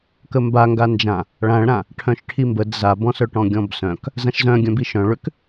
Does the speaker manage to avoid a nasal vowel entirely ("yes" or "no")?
no